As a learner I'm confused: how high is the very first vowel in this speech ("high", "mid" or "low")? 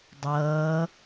mid